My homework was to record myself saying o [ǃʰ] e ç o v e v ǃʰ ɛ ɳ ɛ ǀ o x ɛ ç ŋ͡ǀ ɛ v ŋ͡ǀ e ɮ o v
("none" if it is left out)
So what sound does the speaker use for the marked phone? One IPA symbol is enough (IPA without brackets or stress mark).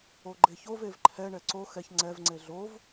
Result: ɡ͡ǃ